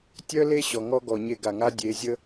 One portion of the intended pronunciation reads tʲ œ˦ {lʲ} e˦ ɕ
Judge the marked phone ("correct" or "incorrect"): incorrect